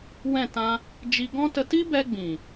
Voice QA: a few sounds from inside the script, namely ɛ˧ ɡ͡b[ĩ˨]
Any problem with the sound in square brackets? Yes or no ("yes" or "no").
no